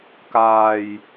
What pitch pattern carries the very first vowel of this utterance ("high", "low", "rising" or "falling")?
low